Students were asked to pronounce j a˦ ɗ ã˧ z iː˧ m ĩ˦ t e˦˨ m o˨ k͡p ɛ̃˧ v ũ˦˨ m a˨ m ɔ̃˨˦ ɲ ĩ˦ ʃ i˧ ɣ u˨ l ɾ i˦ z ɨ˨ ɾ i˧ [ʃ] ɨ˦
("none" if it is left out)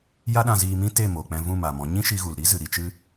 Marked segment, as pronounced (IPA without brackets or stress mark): t͡ʃ